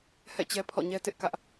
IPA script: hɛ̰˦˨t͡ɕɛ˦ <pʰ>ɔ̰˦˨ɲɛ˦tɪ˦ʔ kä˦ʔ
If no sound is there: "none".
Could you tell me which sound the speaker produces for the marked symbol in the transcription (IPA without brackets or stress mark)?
pʰ